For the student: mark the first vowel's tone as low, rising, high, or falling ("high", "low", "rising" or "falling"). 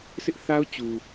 high